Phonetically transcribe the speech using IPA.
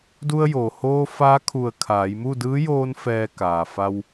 d u˧ ə̯ j oː˩ h oː˧ f aː˧˥ kʰ u˧˩ ə̯ kʰ aː˩˧ j m u˥˨ d ɯː˧˥ j oː˧ n f ɛː˧ k aː˩ f a˧ w

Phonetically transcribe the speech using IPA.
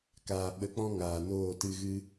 k aː˨ ɓ ə˨˦ k͡p ɔ̃˦ ŋ aː˨ n oː˦˨ t ɨ˦ ɣ ɨ˦

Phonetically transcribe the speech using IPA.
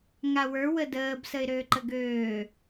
ŋ a w ə˞ w ə d əː b s ə ɪ̯ ɾ øː ǃ ə ɡ øː

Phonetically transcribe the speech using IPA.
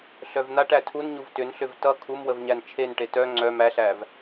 ɬ œ v n̪ a ʈ æ tʰ u n ɲ u v t ʏ n ɬ ʏ v t ʌ kʰ u m w ə v ɲ æ n t͡ʃʰ e n ʈ e t œ ŋ͡ǀ œ m æ ɬ æ v

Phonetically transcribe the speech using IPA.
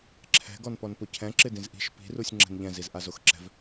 ǁʰ ɛ̤ ɡ ɔ n p ɔ n p ʊ cʰ ɛ̃ ǁ ɪ d ĩ z ʔ i̤ ʃ p i̤ r u sʲ ŋ͡ǁ ɛ̤ n ʎ ɛ̃ z i z ʔ a z o x ǁ ɛ̤ v

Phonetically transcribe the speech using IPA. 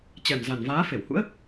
t͡ɕ ɛ˨˩ m z a˨˩ n v aː˨˦ f e˧˩ w h ṵ˧˥ ə̯

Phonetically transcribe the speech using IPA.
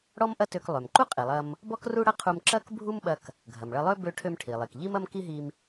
ɽ ɔ˥ m ʔ ɐ˥ t ø˧ k lˠ ø˩ m ǃ u˥ qʼ i˩ lˠ ɐ˧ m | b ɔ˥ k r u˥ ɽ ɐ˥ qʰ u˧ m ǁ ɐ˥ k bʱ u˥ m ɓ ɐ˧ k | ɡʱ ɐ˩ m ɭ ɐ˧ lˠ ø˥ b ø˧ ʈʰ ø˧ m ʈʰ i˩ lˠ i˩ k ʎ i˥ m ɐ˥ m k i˥ ɦ i˧ m

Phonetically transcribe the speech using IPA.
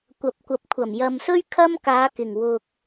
kʷ ɐ˨ p̚ kʷ ɐ˨˥ p̚ kʷʰ ɐ˨˩ m j ɐ˨ m s ɵ˥ ɥ kʰ ɐ˥ m k aː˨˧ k ɪ˨˩ ŋ w ʊ˨ k̚

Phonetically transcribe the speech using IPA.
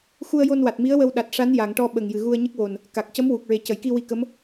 x u˧ ə̯ j o˧ n w a˨˩ t̚ m i˧˥ ə̯ w ə˧ w ɗ a˨˩ t̚ ʂ a˧˥ n j a˨˩˨ ŋ ʈ ɔ˧ ɓ ə˨˩ ŋ j ɨ˨˩ ɣ u˧ ə̯ ɲ ə˦˥ k̚ w o˨˩ n | k a˨˩ k̚ c ə˧˥ m w u˨˩ k̚ ɹ e˨˩ c ə˨˩˨ j k i˧ w i˧ k ə˧˥ m

